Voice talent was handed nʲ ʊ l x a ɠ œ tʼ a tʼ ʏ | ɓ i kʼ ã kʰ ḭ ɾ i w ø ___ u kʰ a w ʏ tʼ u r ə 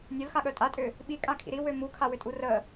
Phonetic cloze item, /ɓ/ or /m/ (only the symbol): m